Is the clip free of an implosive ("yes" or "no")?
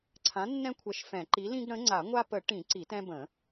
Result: yes